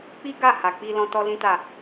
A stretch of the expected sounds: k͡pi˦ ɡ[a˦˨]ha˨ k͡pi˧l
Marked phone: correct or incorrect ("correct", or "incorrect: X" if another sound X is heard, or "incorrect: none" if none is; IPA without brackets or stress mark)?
correct